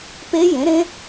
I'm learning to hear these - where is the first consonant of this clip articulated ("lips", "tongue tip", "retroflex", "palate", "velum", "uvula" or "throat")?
lips